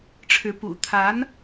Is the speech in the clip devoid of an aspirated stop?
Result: no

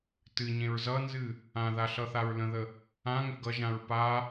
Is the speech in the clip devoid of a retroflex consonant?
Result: yes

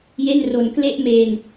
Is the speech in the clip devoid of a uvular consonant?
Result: yes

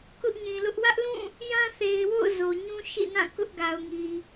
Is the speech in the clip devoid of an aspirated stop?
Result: yes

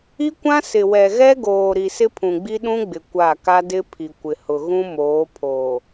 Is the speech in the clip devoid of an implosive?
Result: no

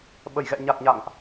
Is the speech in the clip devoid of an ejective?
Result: yes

